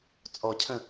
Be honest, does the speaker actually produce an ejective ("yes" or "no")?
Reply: yes